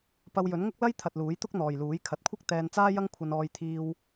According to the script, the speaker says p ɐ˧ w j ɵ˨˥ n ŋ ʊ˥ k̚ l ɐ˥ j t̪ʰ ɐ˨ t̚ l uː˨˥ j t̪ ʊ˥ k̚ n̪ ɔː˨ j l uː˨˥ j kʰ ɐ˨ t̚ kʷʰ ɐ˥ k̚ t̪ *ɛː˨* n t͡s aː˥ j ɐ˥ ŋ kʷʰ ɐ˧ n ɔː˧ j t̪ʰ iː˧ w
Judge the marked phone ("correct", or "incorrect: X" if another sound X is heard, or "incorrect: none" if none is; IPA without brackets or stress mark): incorrect: ɛː˧